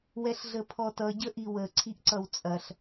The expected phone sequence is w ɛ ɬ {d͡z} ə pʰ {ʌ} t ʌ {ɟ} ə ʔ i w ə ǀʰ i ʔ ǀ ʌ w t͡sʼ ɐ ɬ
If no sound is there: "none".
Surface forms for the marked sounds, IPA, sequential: ɮ, ɔ, ɟ

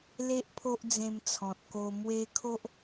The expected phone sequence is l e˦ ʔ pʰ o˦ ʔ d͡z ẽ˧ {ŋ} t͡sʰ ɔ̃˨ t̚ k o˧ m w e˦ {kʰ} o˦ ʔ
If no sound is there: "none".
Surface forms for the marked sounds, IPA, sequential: m, kʰ

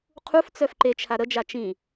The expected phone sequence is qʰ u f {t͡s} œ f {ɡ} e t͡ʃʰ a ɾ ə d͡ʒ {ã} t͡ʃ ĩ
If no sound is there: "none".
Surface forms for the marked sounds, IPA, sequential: t͡s, ǃ, a

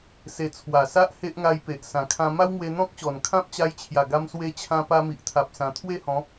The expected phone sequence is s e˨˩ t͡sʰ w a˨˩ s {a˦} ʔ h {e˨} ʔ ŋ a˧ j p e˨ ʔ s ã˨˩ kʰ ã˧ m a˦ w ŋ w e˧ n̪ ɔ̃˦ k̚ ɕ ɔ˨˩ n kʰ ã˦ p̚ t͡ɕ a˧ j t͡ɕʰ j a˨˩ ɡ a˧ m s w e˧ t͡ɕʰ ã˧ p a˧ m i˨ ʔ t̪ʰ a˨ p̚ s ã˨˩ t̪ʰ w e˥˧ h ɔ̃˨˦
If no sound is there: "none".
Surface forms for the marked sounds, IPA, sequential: a˦, e˦

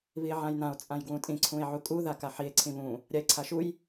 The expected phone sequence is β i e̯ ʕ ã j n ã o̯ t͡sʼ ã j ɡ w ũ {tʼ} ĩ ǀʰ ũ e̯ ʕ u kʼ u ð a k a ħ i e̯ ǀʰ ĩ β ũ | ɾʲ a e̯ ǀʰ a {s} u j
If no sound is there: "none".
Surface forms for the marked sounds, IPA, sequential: tʼ, ʃ

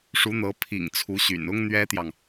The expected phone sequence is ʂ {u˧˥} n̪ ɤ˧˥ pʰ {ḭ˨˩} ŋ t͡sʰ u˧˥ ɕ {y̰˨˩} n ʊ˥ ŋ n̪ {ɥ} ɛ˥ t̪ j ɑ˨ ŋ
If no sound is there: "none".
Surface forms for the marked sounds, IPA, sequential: u˧˥, ḭ˨˩, y̰˨˩, ɥ

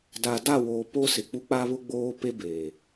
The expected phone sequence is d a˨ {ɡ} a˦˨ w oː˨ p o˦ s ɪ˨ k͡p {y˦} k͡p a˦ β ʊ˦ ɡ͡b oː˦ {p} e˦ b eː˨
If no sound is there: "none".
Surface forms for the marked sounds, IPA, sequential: d, u˦, p

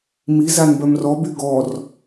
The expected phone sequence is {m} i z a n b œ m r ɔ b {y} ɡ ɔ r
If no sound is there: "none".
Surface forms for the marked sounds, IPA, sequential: m, y

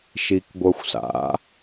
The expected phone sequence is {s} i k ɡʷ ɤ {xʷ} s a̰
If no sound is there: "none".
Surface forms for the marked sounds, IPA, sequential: ʃ, xʷ

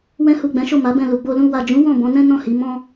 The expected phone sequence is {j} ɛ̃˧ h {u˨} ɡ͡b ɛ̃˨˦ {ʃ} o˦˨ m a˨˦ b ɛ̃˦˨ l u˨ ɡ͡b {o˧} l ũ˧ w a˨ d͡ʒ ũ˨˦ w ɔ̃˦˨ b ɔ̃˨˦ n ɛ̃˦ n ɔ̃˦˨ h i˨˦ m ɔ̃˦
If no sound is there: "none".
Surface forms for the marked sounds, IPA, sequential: w, u˨, ʃ, o˧

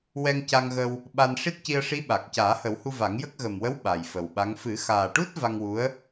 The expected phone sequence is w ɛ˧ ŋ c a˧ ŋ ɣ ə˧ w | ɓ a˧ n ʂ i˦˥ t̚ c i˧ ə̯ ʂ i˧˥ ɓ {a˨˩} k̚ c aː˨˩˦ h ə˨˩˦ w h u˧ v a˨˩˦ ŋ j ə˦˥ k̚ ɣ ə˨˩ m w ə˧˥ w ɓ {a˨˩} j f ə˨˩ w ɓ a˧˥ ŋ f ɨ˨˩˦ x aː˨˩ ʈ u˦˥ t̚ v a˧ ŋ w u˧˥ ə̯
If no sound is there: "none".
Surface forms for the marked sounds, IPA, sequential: a˨˩, a˨˩

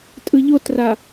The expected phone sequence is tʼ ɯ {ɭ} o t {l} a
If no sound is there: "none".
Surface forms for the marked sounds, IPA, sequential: ʎ, r

